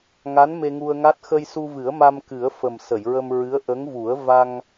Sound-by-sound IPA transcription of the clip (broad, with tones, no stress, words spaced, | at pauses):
ŋa˧˥n me˧ŋu˧ə̯ŋa˦˥t̚ xə˧jsu˧vɨ˨˩˦ə̯ma˧m kɨ˨˩˦ə̯fə˨˩m sə˨˩˨jɹə˧mɹɨ˧˥ə̯ ʔə˧˥ŋvu˨˩˦ə̯ va˧ŋ